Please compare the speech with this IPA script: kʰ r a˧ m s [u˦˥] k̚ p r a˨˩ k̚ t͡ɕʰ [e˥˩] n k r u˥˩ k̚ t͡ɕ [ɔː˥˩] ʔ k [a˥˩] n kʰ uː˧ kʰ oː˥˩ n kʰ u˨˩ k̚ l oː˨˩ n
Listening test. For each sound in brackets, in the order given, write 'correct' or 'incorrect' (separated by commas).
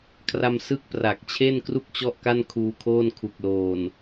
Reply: incorrect, correct, incorrect, correct